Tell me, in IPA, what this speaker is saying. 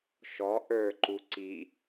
ʃ ɔ ʔ ə˞ ǃ u ǀ i

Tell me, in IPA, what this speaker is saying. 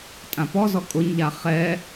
tʼ ã p ɔ z ɔ kʼ ʊ ɲ ʎ a χ ɛ

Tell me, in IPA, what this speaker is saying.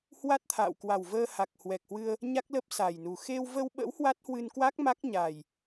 h w a˦˥ t̚ t̪ʰ a̰ː˧˨ w k w a˨˩ w v əː˧ h a˨˩ k̚ h w ɛ˨˩ k̚ h w ɨ˧ ə̯ | ɲ a˦˥ k̚ l ə˦˥ p̚ s a˨˩ j n u˨˩ x e˧ w v ə˧ w ɓ ə̰˧˥ w h w a˦˥ t̚ h w ɨ˧ n k w a˦˥ k̚ m a˦˥ k̚ ɲ a˨˩ j

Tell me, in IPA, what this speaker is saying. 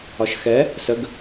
ɒ ʃ x ɛ | s ə ɡ

